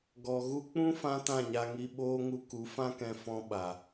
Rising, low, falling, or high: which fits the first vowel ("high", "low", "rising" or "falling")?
low